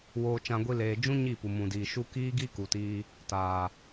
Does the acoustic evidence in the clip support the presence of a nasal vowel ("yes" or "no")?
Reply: yes